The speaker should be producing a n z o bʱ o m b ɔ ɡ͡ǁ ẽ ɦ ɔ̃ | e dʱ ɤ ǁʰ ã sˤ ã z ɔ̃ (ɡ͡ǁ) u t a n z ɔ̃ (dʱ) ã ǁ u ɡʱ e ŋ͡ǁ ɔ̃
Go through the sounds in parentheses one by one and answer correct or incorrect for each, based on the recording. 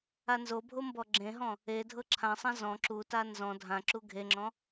incorrect, correct

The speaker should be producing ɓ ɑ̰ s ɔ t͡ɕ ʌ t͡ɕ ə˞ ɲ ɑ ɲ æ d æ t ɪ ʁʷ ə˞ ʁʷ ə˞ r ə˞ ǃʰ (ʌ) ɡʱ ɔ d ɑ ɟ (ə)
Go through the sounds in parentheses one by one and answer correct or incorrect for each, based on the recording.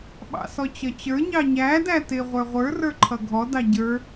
correct, incorrect

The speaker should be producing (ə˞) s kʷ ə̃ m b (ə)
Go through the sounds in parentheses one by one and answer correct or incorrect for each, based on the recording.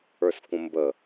correct, correct

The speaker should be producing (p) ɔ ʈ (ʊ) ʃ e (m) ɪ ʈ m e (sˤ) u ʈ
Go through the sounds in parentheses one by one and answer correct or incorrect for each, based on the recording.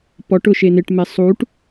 correct, correct, incorrect, correct

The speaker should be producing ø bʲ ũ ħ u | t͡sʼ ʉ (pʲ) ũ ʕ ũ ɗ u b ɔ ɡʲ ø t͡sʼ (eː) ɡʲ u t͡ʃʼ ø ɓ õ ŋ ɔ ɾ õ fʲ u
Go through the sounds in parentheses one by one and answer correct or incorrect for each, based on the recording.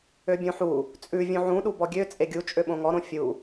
incorrect, incorrect

